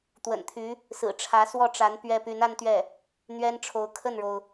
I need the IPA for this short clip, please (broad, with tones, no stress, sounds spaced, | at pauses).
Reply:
t̪ w ə̰˨˩ n t̪ʰ y˧˥ | s ɹ̩˨˩ ʈ͡ʂʰ ä˧˥ s w ɔ˥˩ ʈ͡ʂ a˧˥ n p ɥ ɛ˥ p y˧˥ n a˥ n t̪ ɥ ɛ˥˩ | n̪ ɥ ɛ˥ n ʈ͡ʂʰ o˧˥ ʊ̯ kʰ ə˥˩ n ɻ o˩ ʊ̯